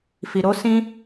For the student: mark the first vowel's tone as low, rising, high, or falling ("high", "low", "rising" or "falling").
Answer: low